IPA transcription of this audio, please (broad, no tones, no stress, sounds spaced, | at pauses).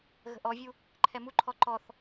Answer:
ɣ ə̤ ʔ ɔ vʲ u | ǃʰ ɛ m u ǃʰ ɔ ǃ ɔ θ